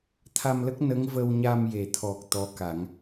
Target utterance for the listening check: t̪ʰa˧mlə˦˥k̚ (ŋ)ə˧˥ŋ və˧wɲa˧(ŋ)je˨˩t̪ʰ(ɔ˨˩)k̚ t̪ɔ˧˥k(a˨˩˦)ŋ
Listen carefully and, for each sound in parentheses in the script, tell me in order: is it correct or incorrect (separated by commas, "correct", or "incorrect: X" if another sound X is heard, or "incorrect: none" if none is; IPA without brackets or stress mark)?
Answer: incorrect: n, incorrect: m, correct, correct